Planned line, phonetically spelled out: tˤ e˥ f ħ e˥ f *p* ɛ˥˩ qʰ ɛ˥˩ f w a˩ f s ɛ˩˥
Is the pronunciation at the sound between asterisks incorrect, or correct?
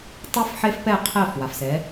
correct